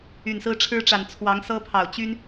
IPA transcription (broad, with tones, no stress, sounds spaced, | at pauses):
y˨˩ n s ɹ̩˦ ʈ͡ʂʰ ɻ̩˦ ʈ͡ʂ a˨˩ n t͡sʰ w ɑ˨˦ ŋ s ɤ˦ pʰ ɑ˨˩ ʊ̯ t͡ɕ y˦ n